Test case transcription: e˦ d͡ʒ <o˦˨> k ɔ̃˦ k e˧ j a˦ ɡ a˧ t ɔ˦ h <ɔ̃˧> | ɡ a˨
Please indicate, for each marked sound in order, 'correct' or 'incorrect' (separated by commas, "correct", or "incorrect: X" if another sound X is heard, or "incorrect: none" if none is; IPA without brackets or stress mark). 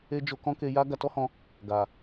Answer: incorrect: o˧, correct